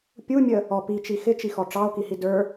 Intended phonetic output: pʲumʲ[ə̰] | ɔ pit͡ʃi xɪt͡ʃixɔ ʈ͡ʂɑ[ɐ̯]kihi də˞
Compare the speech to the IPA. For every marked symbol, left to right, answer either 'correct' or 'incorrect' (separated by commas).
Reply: incorrect, incorrect